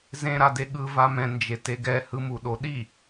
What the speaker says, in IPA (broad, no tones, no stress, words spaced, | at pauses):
zẽ ɾadeɠɯ vamɛ̃ nd͡ʒeteɡɛ hɯmuɗoɗi